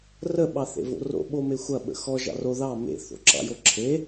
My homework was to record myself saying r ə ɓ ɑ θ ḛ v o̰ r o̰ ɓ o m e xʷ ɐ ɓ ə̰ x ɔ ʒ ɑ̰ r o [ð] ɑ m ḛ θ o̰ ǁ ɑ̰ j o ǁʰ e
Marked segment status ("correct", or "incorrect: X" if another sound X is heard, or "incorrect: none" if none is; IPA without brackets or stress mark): correct